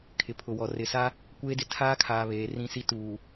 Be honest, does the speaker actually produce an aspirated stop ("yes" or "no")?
yes